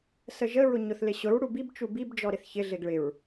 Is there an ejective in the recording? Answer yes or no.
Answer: no